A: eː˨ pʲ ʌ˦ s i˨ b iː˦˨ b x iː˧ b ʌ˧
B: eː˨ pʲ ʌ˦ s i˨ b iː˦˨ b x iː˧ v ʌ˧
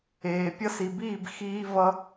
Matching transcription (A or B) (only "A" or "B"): B